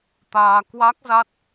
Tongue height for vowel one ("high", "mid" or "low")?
low